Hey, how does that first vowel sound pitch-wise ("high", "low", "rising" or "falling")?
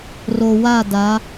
low